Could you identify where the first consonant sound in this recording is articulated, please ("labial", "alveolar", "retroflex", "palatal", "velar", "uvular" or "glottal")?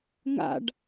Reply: velar